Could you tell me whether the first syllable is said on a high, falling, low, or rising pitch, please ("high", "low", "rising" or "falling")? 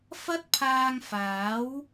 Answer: high